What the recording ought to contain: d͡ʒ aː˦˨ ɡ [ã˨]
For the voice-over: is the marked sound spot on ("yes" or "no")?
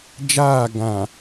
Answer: yes